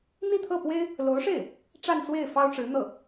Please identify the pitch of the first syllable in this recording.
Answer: falling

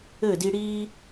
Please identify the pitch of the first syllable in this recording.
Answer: falling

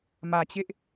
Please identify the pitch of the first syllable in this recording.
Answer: low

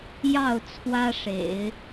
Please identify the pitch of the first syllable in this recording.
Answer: falling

